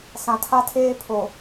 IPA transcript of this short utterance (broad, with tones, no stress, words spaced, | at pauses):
sã˨tʰa˦tʰeː˦ pʰo˨